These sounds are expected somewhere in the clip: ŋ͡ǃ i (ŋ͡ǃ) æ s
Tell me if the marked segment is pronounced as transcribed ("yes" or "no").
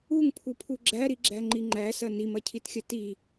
yes